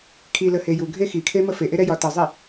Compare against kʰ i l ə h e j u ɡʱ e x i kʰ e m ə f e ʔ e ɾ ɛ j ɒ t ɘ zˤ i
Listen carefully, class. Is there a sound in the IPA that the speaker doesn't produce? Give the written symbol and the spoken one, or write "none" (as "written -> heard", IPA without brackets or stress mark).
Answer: none